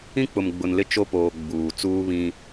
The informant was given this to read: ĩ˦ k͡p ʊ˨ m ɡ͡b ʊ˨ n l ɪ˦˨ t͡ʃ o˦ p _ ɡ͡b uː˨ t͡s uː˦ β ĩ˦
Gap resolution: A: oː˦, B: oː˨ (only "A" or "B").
B